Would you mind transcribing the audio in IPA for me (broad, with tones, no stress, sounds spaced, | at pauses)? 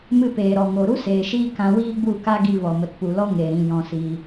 m ɨ˧ p eː˨ ɾ ɔ˨ ŋ o˨ ɾ u˦ s eː˨ ʃ iː˧ k ã˧ w iː˦ ɡ͡b u˦˨ k a˦ ɡ i˧ v ɔ˨ m ə˨ t p u˨ l ɔ˦ ŋ e˨ ɾ ĩ˨ j ɔ̃˨ s iː˧